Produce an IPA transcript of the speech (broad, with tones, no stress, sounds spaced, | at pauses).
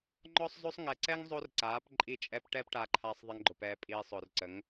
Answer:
ŋ͡ǃ ɔ˦ sˤ z o˦ sˤ ŋ ɛ˨ ǀ ɛ˦ ŋ zˤ o˦ r ǀ aː˨˦ p ǃʼ i˦˨ t͡ʃʼ ɛ˦ p ʈ ɛː˦ p ʈ aː˧ ǃʰ aː˧ sˤ ðˤ ɛ˧ ŋ ɡ͡ǃ ʊ˨ p ɛː˧ pʼ iː˧ sˤ ʊː˨ r ǀ ə˨˦ ŋ